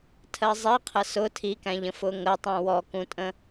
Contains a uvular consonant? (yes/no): yes